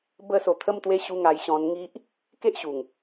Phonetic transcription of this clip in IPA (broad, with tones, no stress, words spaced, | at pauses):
bə˧so˨˩t̪ʰə˧mt̪we˧ ɕu˧ŋa˧j ɕɔ̃˧nŋi˦ʔ | ke˦ʔɕu˨˩ŋ